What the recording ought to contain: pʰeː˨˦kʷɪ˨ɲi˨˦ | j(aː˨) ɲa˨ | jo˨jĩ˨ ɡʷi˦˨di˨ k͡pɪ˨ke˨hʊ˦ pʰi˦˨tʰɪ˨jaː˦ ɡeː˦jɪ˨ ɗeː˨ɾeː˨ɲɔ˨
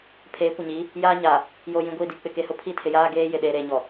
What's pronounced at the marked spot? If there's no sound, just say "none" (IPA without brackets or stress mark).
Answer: aː˦